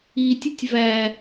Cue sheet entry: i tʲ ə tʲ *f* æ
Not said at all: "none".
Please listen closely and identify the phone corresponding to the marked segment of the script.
v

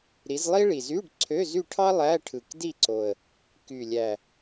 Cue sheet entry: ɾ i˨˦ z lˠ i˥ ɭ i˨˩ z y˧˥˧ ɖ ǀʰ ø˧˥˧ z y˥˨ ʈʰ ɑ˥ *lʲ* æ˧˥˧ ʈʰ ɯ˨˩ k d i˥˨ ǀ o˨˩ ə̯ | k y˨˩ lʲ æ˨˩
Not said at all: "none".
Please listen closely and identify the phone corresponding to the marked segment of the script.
lˠ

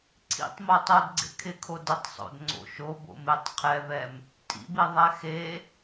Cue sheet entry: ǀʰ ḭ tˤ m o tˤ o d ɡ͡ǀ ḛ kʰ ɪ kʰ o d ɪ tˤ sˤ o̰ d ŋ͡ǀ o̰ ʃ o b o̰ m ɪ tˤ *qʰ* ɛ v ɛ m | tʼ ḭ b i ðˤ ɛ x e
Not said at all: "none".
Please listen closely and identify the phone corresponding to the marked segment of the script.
qʰ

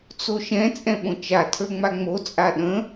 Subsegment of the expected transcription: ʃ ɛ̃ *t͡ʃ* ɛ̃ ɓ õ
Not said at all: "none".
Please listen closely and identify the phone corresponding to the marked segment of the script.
t͡sʼ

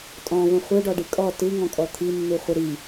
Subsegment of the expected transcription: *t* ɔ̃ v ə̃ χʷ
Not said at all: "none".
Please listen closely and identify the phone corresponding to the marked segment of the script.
tʼ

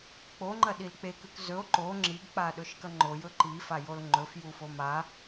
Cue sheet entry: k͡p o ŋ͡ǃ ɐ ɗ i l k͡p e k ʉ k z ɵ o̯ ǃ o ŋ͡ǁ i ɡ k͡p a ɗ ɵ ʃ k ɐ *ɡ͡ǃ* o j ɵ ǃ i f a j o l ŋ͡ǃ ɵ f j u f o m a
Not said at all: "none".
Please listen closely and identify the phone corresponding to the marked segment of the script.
ŋ͡ǃ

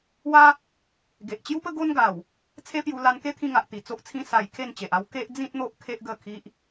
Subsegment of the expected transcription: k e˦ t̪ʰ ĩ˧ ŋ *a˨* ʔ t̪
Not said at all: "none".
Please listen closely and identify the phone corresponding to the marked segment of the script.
a˨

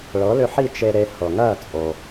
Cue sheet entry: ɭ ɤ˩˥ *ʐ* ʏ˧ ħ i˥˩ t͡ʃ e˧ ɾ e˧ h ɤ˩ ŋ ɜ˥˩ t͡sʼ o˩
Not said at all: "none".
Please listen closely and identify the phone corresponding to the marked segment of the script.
l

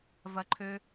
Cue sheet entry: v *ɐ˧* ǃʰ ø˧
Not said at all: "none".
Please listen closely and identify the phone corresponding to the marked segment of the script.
ɐ˧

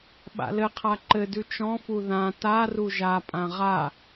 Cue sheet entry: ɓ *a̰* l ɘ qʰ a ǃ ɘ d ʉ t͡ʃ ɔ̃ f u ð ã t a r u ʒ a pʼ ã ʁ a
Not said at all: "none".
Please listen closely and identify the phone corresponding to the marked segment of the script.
a̰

